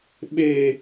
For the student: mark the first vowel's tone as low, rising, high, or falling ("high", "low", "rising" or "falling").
high